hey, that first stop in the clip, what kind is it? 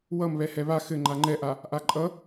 click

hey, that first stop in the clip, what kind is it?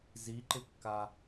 click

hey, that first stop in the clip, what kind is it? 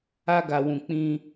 plain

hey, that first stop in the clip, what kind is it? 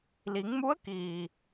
plain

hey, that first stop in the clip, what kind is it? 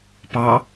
plain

